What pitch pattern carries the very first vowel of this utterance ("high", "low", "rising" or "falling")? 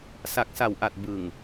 low